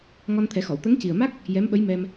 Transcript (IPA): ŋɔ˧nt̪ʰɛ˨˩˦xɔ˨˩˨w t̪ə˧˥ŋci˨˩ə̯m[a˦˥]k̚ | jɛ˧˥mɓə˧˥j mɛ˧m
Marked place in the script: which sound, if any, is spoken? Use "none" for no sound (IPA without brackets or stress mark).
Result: a˦˥